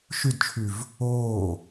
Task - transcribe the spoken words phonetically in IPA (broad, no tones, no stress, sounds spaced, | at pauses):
ʃ y d t͡ʃʰ y v | oː